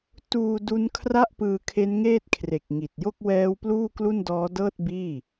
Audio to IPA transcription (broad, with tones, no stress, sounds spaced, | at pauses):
t uː˧ d u˦˥ n kʰ r a˥˩ ʔ p ɯː˧ kʰ e˦˥ n ŋ eː˥˩ t̚ kʰ r e˨˩ k̚ ŋ i˨˩ t̚ j o˥˩ k̚ w ɛː˦˥ w p l uː˥˩ k l u˥˩ n d ɔː˦˥ d ɤː˥˩ t̚ b iː˥˩